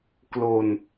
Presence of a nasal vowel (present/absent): absent